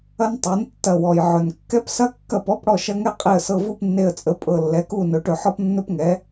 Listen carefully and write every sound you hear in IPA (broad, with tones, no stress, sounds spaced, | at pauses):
ɐ˥ n tˤ ɤ˩˥ n tː ɐ˧˩ w ɔ˩ j ʕ ɵ˩ n kː ɛ˥ p s ɐ˥ kː ɐ˥˨ p ɔ˥ p ɽ ɔ˥˨ ʃ ɐ˥ ŋ ɛ˥ qʼ e˧˩ ə̯ s ɤ˧˩ v u˥˨ p nː e˧˩ ə̯ t͡sʼ ə˩˥ pʼ ɤ˧˩ lː ɛ˩˥ k u˥˨ n ɵ˩˥ ʈ ɵ˩ ħ ɔ˥ p nː ɵ˥ p ŋ ɛ˩˥